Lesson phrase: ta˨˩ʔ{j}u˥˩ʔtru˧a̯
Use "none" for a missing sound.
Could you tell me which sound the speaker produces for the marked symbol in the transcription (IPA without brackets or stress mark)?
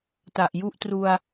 j